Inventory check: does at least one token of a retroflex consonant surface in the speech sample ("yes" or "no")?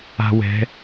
no